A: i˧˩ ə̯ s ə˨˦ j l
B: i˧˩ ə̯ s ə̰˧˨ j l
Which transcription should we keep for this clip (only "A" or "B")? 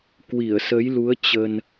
A